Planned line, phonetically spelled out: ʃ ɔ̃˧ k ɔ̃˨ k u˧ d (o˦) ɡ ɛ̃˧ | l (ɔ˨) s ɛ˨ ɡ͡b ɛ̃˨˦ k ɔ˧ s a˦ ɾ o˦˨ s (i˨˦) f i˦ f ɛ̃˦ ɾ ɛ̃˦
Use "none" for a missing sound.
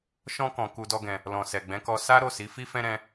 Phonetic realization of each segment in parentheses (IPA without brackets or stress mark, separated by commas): ɔ˦, ɔ̃˨, i˨˦